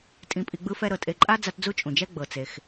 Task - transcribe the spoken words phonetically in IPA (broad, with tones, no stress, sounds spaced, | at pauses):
tʼ ĩ˨ pʼ i˨ ɡ͡b ɯ˦ f ɛ˦ ɾ ɤ˩ tʼ e˨ ǃʼ a˥ d͡z a˦ t d͡z u˥ t͡ʃʼ ũ˩ d͡ʒ ɛ˥ ɡ͡b ɤ˩ t͡s e˩ x